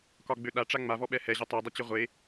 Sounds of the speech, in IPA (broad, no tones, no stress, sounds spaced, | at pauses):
k ɒ ɡ͡b ø ɗ a ʈ͡ʂ a ŋ͡m a v ɔ ɓ ɛ h ɛ ʑ ɪ tˤ ø dˤ ɪ t͡ɕ ɪ ʁʷ e